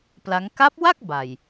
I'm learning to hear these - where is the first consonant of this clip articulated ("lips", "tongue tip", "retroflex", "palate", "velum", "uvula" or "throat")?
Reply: lips